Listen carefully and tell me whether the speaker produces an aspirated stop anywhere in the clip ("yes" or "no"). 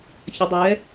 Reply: no